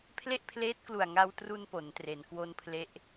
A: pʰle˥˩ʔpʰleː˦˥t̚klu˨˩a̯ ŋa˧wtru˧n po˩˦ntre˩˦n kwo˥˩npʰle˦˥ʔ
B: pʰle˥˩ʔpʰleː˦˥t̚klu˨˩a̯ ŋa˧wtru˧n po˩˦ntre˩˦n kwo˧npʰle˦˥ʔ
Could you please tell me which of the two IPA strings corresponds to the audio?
B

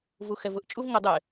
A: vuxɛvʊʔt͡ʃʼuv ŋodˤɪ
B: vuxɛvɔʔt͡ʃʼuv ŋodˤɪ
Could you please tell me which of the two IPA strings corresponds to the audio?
A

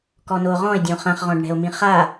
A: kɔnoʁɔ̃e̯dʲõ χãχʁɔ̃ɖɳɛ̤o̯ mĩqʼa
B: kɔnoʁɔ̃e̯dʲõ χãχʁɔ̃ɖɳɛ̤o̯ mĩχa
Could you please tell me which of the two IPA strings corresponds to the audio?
B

